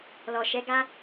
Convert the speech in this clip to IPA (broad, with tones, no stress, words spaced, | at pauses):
lɔ˨ʃɛ˨˦ɡa˦